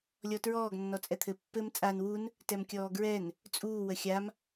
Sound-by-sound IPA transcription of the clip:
lʲ ɔ t ɹ ɔː ɡ nː ɔ t͡sʼ ɛ t̪ʰ ɘ pː ɘ m t͡sʼ a n w u n | t ɛ m kʲ ɔː ɡ ɹ ɛ n | t͡sʼ uː w ə xʲ a m

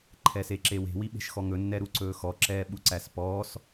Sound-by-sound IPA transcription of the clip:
ǃʰ ɛ s e ǁ e w e̤ w i ɓ e̤ ʃ x ɔ ŋ ɵ nː ɛ ɾ u ǀ ɵː x ɔ ǁ ɛː ɓ u ǀ æ s p ɔː s

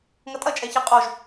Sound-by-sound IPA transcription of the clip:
ŋ ɐ tʼ ɐ t͡ʃʼ ɛ ç e qʼ o ʒ

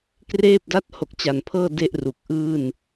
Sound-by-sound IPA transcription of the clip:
k r eː˥˩ p̚ d a˥˩ t̚ h o˨˩ k̚ t͡ɕ a˨˩ n pʰ ɤː˥˩ d e˥˩ ʔ r u˨˩ k̚ ʔ ɯː˥˩ n

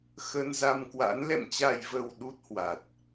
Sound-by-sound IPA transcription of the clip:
x ə˧ n z a˧ m k w a̰˧˥ n l ɛ̰˧˨ m t͡ɕ a˨˩ j v ə˨˩ w ɗ u˦˥ t̚ h w a˨˩ t̚

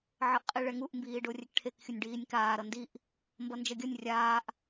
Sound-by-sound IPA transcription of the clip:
ʕ ʌ ʔ qʼ i ɭ ɛ ŋ u ʔ m b iː ɖ o rʲ ɛ k ʈʰ e k xʲ u nʲ ɖ iː nʲ k aː ɾ ʌ n d i ʔ | m b ʌ n d͡ʒ ʌ ɡʲ ʌ nʲ rʲ aː ʔ

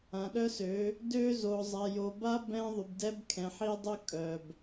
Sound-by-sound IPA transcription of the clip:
ã˨ ɗ œ˦ s ø˨˦ | d ø˦ z o˨ zˤ ɛ˨ j o˨ b a˦ b ɛ̃˦ ðˤ y˨ b d ɛ˦ b kʰ ɛ̃˨ ħ i˦ dˤ ø˦ kʼ œ˨ b

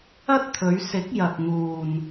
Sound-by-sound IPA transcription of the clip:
ɐ˥ t̚ t̪ʰ ɵ˨˧ ɥ s ɪ˨˥ k̚ j ɐ˧ k̚ ŋ uː˧ n

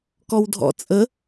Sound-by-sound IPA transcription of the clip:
k ɔ w dʱ ɔ̰ t͡sʼ ə

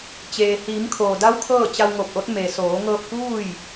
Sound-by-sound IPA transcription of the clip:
t͡ɕ eː˩ h iː˩˧ m kʰ oː˩ d a˧˥ w kʰ ɤː˥˨ t͡ɕ a˧ w ŋ o˧˩ p̚ ʔ o˧˥ t̚ m e˩ s oː˩˧ ŋ ɤː˧ p̚ k uː˥˨ j

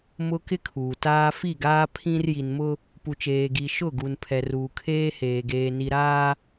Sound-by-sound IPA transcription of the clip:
m ʊ˦ k ɪ˦ kʰ uː˨ t aː˦ f i˦˨ ɡ aː˦ pʰ ĩ˦ r j i˨ n m ʊ˦ | p u˨ t͡ʃ eː˨ ɡ i˨ ʃ ʊ˦˨ ɡ u˨ n pʰ ɛ˨ r uː˨ kʰ eː˦ h eː˨ ɡ eː˨ n i˨ ɾ aː˦

